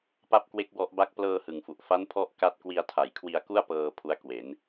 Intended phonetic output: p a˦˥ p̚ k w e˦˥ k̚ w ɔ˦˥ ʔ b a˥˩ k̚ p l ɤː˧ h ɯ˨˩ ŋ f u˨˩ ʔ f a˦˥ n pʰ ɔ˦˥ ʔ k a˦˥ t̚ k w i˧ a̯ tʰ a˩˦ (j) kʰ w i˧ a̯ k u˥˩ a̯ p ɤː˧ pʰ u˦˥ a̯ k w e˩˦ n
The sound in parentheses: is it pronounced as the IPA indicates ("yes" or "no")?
yes